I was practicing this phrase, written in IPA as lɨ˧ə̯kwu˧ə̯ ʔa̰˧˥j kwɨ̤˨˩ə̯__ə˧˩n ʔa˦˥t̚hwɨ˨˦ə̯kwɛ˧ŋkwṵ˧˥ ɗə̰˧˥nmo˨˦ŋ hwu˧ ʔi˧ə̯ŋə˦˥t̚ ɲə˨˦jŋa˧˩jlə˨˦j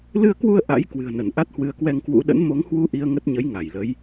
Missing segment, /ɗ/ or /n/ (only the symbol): n